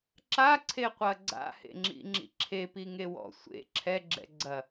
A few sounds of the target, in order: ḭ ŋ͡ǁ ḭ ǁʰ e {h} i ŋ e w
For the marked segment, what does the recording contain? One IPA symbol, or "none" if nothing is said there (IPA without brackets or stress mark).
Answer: p